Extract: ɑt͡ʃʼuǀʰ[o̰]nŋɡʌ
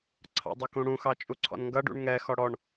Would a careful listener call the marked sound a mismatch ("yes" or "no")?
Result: yes